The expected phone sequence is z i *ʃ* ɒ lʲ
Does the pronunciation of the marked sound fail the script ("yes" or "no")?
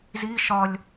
no